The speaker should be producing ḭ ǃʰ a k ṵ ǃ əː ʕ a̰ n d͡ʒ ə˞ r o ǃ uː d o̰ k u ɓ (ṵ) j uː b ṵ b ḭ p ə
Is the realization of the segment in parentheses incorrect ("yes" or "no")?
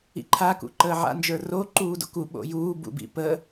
yes